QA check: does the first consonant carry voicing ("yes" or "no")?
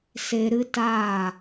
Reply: no